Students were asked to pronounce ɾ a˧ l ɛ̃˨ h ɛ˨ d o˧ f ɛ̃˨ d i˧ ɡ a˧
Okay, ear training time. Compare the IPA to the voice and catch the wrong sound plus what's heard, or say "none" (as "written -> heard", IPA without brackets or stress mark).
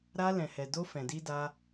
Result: ɡ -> d